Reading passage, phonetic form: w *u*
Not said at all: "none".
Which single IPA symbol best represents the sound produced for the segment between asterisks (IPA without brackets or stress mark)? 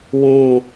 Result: ũ